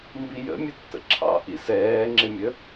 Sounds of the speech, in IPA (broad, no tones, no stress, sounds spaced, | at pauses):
m b i j ə̰ mʲ ə tː ə̰ ǁʰ ɑ̰ ʔ ḭ s ɛː ŋ͡ǁ ɪ mʲ ə